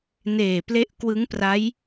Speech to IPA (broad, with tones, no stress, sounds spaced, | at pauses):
n eː˨˩ p l e˦˥ ʔ k w ɯ˦˥ ŋ p r a˦˥ j